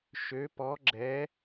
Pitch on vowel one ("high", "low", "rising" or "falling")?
rising